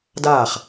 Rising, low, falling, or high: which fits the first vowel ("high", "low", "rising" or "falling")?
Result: falling